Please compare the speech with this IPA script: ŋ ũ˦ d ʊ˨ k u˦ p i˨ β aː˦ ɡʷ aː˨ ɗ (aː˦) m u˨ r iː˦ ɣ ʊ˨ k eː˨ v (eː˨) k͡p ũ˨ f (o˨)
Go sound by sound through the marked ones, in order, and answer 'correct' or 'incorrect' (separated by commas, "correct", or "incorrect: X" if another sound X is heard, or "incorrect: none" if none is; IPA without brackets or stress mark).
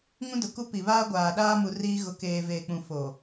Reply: correct, correct, correct